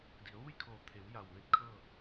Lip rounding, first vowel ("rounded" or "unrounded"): unrounded